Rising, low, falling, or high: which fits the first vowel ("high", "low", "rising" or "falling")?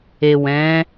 low